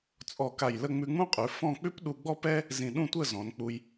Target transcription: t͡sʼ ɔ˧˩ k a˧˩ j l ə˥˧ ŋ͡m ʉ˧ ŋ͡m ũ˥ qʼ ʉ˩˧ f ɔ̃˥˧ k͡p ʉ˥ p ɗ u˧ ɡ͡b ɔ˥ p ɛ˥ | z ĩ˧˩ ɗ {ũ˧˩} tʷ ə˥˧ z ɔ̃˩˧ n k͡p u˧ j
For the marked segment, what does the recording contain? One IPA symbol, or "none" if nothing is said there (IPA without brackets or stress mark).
ũ˥˧